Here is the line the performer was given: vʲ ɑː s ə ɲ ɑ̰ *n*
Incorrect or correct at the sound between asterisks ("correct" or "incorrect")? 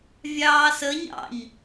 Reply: incorrect